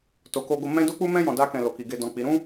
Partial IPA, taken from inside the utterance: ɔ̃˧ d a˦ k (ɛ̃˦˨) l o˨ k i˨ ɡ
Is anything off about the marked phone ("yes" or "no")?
yes